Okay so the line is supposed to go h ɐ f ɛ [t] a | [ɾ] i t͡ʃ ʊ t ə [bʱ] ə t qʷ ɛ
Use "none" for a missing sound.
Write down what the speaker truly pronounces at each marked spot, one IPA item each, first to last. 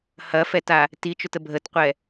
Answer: t, t, bʱ

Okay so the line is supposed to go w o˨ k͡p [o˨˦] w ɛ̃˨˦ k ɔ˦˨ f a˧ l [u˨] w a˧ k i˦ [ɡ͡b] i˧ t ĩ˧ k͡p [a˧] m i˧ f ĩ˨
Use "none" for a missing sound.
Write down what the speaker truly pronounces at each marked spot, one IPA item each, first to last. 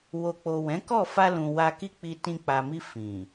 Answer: o˨, ũ˨, k͡p, a˨

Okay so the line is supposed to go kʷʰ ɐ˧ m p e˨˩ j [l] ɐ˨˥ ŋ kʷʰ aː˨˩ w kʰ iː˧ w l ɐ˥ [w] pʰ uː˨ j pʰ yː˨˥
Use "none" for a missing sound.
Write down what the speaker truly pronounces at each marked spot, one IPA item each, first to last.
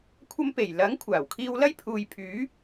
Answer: l, j

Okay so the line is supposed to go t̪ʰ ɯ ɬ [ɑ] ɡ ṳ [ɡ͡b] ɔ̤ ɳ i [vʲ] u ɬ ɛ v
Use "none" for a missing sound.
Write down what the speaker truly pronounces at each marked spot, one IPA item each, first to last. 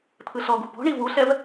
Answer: ɔ, b, v

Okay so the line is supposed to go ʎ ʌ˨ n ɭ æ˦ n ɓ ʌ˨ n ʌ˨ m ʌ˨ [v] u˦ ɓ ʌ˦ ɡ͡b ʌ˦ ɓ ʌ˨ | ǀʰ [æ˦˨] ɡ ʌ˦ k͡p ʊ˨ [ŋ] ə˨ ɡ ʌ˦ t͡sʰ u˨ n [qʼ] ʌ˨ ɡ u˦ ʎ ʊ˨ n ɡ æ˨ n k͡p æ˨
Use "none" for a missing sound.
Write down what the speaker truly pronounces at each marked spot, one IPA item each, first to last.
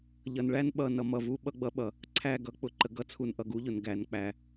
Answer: v, æ˦˨, ǃ, ʔ

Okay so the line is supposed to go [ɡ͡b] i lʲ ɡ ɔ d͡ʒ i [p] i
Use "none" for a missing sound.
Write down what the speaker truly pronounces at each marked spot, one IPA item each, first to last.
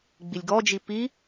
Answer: ɡ͡b, p

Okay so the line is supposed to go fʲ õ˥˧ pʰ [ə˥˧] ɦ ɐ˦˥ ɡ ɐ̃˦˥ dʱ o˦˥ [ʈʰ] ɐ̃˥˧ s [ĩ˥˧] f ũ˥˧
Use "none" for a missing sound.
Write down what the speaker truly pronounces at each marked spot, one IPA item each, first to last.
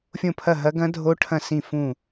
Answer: ɐ˥˧, ʈʰ, ĩ˥˧

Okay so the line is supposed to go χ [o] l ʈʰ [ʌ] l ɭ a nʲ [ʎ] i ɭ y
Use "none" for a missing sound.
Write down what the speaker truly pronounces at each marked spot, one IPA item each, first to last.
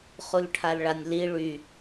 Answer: u, a, l

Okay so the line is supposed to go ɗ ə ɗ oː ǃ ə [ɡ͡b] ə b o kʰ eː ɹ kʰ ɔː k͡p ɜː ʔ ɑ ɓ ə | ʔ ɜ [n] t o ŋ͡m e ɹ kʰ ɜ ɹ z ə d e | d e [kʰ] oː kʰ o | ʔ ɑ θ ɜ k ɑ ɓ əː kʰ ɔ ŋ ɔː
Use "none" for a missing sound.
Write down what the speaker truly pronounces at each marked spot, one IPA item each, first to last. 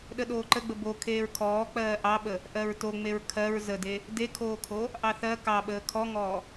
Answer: ɡ͡b, ɹ, kʰ

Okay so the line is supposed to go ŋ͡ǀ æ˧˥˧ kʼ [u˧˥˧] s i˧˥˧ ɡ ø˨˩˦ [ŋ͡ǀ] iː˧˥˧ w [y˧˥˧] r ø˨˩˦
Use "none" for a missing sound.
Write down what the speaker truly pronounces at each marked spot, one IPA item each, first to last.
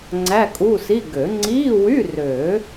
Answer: u˧˥˧, ŋ͡ǀ, y˧˥˧

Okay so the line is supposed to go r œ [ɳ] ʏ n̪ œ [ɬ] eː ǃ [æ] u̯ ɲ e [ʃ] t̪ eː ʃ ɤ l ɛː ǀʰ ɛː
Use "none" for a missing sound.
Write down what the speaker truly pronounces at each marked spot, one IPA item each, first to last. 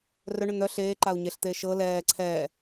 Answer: ɳ, ɬ, a, ɬ

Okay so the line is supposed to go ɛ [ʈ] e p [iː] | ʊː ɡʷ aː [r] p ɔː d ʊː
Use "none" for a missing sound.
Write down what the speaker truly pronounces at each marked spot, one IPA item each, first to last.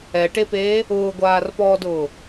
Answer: ʈ, eː, r

